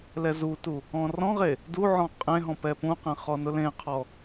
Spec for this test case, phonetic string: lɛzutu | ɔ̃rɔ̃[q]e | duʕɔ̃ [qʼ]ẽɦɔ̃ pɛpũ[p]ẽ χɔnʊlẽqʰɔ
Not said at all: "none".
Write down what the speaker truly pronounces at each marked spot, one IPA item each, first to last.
ʁ, qʼ, q

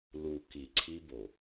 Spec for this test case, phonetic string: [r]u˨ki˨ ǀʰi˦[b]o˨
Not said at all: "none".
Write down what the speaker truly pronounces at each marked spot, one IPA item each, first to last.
l, b

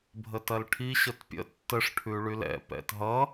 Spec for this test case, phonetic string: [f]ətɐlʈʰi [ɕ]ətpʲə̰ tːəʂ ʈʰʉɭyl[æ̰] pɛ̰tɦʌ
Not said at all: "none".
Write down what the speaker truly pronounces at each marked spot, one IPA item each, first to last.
bʱ, ɕ, ɛ̰

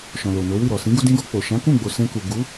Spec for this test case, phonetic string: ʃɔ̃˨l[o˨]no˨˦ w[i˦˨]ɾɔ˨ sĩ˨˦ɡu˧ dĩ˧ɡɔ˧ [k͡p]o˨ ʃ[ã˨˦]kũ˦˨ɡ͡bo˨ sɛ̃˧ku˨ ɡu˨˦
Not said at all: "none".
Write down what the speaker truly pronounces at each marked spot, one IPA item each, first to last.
o˨, i˦˨, k͡p, ã˨˦

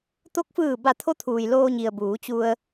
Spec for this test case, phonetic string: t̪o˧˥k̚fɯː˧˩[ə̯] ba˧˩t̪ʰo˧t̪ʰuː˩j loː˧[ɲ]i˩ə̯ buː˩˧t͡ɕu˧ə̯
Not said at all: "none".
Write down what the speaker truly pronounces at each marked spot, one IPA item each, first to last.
none, ɲ

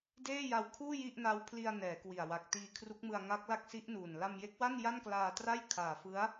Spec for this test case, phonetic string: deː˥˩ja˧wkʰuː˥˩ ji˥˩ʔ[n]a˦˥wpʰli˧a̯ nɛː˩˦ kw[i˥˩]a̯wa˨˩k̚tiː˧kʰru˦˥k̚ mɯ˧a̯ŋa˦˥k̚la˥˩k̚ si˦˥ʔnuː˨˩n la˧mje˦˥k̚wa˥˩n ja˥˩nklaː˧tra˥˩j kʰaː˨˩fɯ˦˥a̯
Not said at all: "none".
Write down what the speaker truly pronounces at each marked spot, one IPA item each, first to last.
n, i˨˩

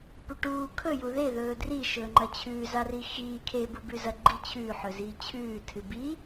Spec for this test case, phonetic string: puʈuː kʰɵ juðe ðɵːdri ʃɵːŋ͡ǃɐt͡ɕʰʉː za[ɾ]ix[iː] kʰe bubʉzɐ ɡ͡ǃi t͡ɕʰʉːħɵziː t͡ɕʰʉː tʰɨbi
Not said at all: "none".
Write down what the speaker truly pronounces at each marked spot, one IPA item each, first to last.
r, iː

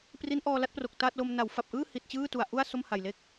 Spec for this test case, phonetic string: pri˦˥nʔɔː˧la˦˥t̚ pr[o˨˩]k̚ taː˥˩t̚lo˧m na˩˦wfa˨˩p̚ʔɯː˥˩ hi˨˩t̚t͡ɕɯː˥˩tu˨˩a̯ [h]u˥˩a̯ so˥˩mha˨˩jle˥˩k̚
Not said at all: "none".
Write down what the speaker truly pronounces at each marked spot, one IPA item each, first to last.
o˨˩, ʔ

